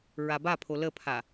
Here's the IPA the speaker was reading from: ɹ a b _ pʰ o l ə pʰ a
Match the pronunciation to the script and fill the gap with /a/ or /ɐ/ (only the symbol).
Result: a